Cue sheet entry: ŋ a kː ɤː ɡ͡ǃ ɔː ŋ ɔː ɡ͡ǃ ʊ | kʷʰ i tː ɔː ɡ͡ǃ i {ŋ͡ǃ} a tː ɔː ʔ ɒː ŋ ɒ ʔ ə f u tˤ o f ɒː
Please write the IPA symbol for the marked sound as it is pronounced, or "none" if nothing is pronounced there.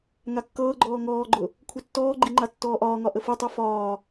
ŋ͡ǃ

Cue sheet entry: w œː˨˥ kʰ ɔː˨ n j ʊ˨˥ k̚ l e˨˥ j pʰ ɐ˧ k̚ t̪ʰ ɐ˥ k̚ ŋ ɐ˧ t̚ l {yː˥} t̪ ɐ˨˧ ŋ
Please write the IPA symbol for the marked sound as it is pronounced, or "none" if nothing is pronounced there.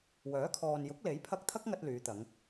yː˨˧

